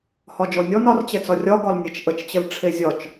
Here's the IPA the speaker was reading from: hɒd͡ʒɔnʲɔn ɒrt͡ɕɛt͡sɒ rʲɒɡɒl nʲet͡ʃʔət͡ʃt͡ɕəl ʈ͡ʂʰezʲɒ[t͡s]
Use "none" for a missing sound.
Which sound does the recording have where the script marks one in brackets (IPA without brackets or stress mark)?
t͡ʃ